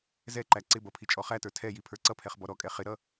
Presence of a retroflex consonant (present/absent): absent